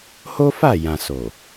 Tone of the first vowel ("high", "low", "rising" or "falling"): high